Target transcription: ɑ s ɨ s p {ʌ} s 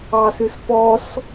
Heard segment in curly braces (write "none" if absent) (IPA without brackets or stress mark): ɔ